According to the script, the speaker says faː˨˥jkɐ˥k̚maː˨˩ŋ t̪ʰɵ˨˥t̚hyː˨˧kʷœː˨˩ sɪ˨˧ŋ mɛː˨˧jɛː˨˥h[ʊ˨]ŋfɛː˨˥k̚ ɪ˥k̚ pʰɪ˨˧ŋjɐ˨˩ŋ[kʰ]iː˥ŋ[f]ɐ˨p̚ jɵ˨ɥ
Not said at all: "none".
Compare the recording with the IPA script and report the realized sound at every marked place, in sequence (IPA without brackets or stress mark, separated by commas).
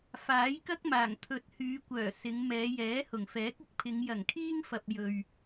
ʊ˨˩, kʰ, f